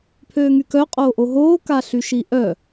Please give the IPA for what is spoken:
pʰ øː ŋ y k œ qʼ oː ʔ o ɦ oː k a ɬ y ʃ i ʔ œ

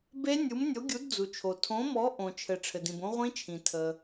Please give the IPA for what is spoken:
b e˦˥ nʲ u˨˥ m nʲ o˨˥ ɡʲ u˨˥ d d͡z u˩ t͡ʃʰ o˩ tʰ õ˨˥ m ɔ˨˥ ʔ õ˩ t͡ʃʰ ɘ˩ ʈ͡ʂʰ ɘ˩ d ĩ˩ b õ˦˥ ʁʷ ĩ˦˥ t͡ʃʰ ĩ˩ tʰ ə˩

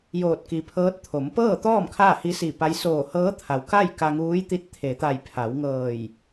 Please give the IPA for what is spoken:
j oː˧˩ t̚ k i˩ pʰ ɤː˧˥ t̚ t̪ʰ o˩˧ m p ɤː˥˨ t̪ ɔː˥˨ m kʰ aː˥˨ h i˧˥ s i˧˩ p a˧˥ j s oː˧˩ h ɤː˧˥ t̪ʰ a˩ w k a˥˨ j k a˧ ŋ uː˧˥ j t̪ i˧˥ t̚ t̪ʰ e˩˧ t̪ a˧˩ j pʰ a˩˧ w ŋ ɤː˧˩ j

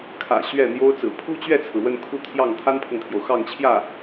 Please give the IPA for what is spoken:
kʰ ä̰˨˩ ɕ ɥ ɛ˥˩ n̪ j o˥ ʊ̯ t͡s ɹ̩˨˩ pʰ u˥ t͡ɕ ɥ ɛ˥˩ t͡sʰ ɹ̩˩ w ə˥˧ n kʰ u˥˧ t̪ʰ j ɑ˥˩ ŋ t̪ʰ a˥ n pʰ ɤ˨ ŋ t̪ʰ j o˩ ʊ̯ x ɑ˥˧ ŋ t͡ɕʰ j ä˥˩

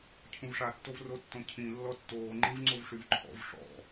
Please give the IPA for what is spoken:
cʰ ũ v ʂ a tː o v r o tː õ cʰ ĩ lː ɔ tː oː ŋ͡ǃ ĩ v ŋ͡ǀ o v ʂ y v ǃʰ ɔ̰ v ʂ ɔ̰

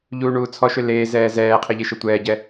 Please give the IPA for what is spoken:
ʎ uː ɳ uː t͡sʰ ɔ ʃ ø l eː z ɛː z ɛː qʰ ɘ ʎ e ʃ ɘ tʷ ɛː ɟ ɛ

